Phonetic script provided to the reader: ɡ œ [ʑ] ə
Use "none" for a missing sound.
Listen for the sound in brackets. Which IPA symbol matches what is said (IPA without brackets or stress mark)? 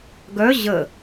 ʑ